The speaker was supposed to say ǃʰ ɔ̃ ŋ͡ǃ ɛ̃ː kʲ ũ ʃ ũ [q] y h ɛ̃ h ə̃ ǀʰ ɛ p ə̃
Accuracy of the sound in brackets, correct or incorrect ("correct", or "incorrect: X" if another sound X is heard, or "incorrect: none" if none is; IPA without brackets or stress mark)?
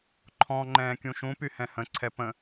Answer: incorrect: p